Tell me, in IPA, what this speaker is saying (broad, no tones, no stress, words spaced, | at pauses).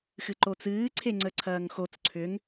xɨǃot͡sɨː ǀʰeŋ͡ǀəǀʰɐːŋxot͡s ǀʰʏŋ